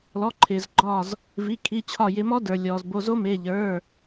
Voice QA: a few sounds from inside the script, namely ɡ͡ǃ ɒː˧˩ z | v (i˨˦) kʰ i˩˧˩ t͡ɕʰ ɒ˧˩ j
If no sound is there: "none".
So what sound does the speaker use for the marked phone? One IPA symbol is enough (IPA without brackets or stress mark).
i˩˧˩